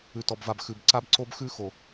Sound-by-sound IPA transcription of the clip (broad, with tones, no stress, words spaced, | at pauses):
ʉ˨tɔ˨bva˨b xʉ˨b ǀa˦bǀo˦b xʉ˦xo˨